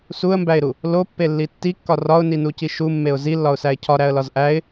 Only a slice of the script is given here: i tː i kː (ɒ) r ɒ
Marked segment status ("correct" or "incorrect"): correct